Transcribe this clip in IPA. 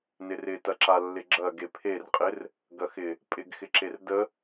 n ɪ r ɪ t ɐ ǁ a lː ɪ ɡ͡ǁ ɐ ɡ e pʰ e r qʼ ɪ r | ɡ ɐ x ɪ | pʼ ɪ ɡ x ɪ ǁ e r d ə

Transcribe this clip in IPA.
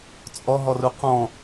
t͡sʼ ɔ ɦ ɔ r u q ɔ̃

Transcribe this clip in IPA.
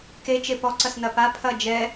k e t͡ʃ e p ɔ ǀ ɐ s n ɐ p a pʰ ɐ d͡ʒ ɛ

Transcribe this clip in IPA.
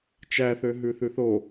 t͡ʃ æ θ ø ɦ ʉ θ ʉ θ o

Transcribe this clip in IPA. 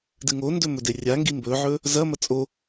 d ɨ ŋ o n d ɵ m ɵ d e rʲ a ŋ ɡ i m b ɵ ʕ ɵ | z ɐ m ɐ t͡sʼ o

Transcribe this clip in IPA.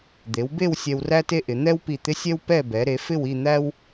d̪ e˩˧ w b e˥˧ w sʲ ɛ˧ w r æ˥ t e˥ ʔ ɪ˩˧ n̪ ɛ˥ w p i˧˩ t̪ ɪ˥ sʲ ɛ˥ w p ɛ˥˧ b ɛ˩˧ ɾ e˩˧ f ɪ˥˧ w i˥˧ n̪ æ˥ w

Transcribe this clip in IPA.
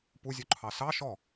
p u zʲ u ǃʰ ɑ s ɑ ʃ ɔ

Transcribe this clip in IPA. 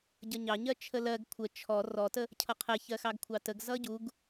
ɟ ʌ ɲ ɑ ɲ ɜ t͡ʃʰ ə l ɜ ɡ kʷʰ ə t͡ʃʰ ɔ r ɔ t ə | cʰ ʌ qʰ ɛ ç ɜ x ɑ ɡ kʷʰ ɑ t ə ɡ z ʌ ɟ u ɡ

